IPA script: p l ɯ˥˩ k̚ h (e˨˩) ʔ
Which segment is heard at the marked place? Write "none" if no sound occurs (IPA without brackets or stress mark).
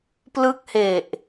e˨˩